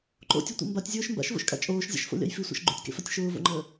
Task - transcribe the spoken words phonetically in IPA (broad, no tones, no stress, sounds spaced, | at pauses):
ǃ o̰ tʲ o tʷ ḛ m b a tʲ zʲ ʊː ʃ m b a̰ ʃ v o̰ ʃ kʼ a̰ t͡ʃʼ oː ʃ zʲ a̰ ʃ f o̰ lʲ a̰ j f i sʷ a̰ ʃ ɡ͡ǃ ṵ tʲ k ḛ f a tʲ ʃ ʊː v o̰ ŋ͡ǃ əː